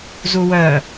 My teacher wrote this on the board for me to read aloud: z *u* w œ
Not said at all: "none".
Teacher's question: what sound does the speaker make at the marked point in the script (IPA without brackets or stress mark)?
u